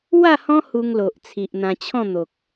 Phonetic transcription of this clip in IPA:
w a˥˧ h ɔ̃˦ h u˧ ŋ l o˨ ʔ t͡sʰ i˨ ʔ n̪ ã˧ t͡ɕʰ ɔ̃˥˧ n̪ o˨ k̚

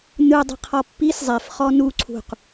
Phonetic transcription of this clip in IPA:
n ɯ dˤ e̤ qʰ ɔ pː i s zˤ e f χ ɔ n u ǀʰ ṳ q

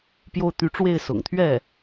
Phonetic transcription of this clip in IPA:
p j o˥˩ ʊ̯ t̪ y˧˥ ʈ͡ʂ w e˥˩ ɪ̯ s ʊ̰˨˩ ŋ t̪ʰ ɥ ɛ˥˩

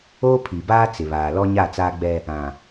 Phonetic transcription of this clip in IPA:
oː˦ pʰ iː˨ b aː˦ t͡s ɪ˨ β aː˨ l ɔ˦ ɲ a˦˨ t͡s aː˦ ɡ͡b ɛ˦ | ã˨

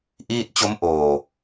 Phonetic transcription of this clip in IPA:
ʔ iː˥˩ t̚ t͡ɕ o˦˥ m ʔ oː˨˩

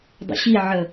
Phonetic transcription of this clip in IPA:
dˤ ə̰ ɕ i ʕ ə

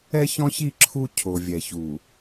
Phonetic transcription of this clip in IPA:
ɛ˦ ç ɔ̃˦ ç i˦˨ ǁʰ u˦ cʰ o˨ vʲ ɛ˨ ç u˨

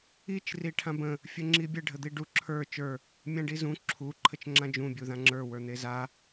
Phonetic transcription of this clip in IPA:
i t͡ʃ r i ʈʰ ã b ə̃ | fʲ ə ŋ͡ǁ i bʲ ə ɖʱ ə d̪ i ɖ u ǁʰ ə˞ t͡ʃ ə˞ | mʲ ã ɖ i z ũ ǁʰ u ǃʰ ə t͡ʃ ŋ͡ǁ ã d͡ʒ ũ bʲ u ð ã ŋ͡ǁ ə˞ w ə˞ n̪ e z a

